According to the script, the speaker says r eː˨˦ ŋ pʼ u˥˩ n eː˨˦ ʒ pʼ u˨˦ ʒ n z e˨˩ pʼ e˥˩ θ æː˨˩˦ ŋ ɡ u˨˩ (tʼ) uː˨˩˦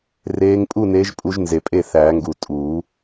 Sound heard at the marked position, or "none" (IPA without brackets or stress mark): tʼ